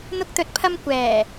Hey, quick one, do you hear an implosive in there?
no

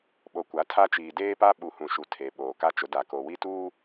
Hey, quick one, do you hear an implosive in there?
yes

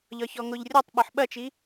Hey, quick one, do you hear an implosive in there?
yes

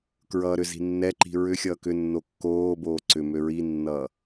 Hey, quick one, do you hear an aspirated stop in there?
no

